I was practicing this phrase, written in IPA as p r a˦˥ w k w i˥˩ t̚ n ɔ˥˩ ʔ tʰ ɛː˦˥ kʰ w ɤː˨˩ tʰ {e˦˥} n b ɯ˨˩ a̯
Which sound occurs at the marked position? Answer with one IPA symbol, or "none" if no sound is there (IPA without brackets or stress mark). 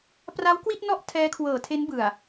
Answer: e˦˥